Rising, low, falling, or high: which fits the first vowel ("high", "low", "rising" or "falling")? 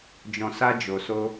low